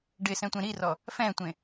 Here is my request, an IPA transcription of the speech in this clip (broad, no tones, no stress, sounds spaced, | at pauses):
ɖ ɪ s ɛ̃ tʷ ẽ ɾ i r ɔ | f ɛ̃ tʷ ẽ